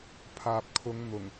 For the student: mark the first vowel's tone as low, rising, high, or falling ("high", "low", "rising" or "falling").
low